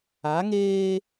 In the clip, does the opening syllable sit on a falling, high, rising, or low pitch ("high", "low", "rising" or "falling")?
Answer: rising